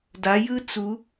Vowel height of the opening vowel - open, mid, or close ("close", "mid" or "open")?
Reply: open